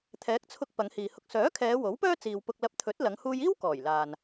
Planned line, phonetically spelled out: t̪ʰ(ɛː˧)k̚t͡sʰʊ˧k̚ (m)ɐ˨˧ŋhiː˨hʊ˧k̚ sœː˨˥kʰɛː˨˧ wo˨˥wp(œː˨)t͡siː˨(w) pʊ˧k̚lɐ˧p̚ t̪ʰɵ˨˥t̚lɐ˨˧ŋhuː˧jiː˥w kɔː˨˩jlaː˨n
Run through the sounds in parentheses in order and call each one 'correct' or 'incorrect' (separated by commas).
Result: incorrect, incorrect, incorrect, correct